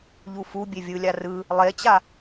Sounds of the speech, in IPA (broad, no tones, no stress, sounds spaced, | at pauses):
ʎ u f u bʲ e vʲ ɯ lʲ a r ɯ | lˠ e t͡ɕ a